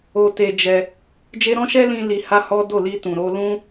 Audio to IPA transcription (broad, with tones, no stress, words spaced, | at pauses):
o˧te˧ d͡ʒɛ˧ | d͡ʒe˦ ɾɔ̃˦ʃɛ˦lĩ˧ li˧ha˦hɔ˦ do˦˨li˧tũ˨ ɾo˧lũ˦